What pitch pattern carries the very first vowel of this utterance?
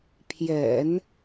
low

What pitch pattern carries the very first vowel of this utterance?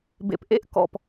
low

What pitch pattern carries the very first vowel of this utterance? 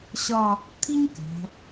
falling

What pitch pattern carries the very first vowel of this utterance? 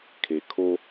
low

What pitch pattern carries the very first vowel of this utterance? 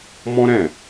high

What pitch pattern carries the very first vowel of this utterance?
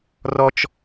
high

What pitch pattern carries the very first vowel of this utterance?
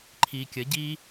low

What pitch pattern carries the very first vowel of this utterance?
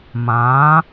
rising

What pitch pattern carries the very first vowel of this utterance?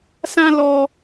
high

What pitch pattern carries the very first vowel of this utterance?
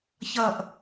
low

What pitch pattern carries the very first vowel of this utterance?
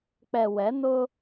low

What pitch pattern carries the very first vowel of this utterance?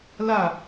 falling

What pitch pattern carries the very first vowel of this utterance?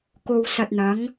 low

